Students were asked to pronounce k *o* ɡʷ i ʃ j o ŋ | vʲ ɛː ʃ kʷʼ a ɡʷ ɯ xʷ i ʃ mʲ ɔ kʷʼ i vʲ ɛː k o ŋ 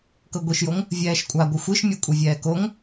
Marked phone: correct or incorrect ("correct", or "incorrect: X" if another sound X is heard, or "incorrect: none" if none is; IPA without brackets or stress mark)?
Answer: incorrect: ɤ